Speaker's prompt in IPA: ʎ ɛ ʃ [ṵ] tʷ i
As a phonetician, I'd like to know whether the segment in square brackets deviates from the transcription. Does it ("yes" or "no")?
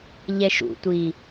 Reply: no